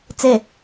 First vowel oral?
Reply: yes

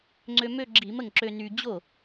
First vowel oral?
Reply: yes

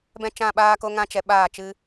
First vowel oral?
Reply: no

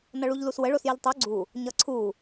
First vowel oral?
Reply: yes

